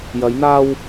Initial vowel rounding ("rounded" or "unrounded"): unrounded